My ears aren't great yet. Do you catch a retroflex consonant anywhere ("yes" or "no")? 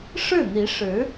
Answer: yes